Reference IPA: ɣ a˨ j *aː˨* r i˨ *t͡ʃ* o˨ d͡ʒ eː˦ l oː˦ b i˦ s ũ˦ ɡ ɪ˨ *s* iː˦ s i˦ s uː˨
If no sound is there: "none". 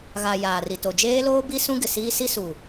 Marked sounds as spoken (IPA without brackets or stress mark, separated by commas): aː˨, t, s